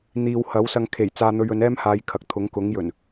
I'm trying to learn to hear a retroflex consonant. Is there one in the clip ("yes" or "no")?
no